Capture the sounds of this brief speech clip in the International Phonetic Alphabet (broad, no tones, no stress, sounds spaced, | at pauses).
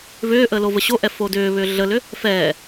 v ʏː ʔ əː l o v ə ɕ o ʔ ɛ f o d ʏː β ʏː ɮ ə l ʏ | f ɛː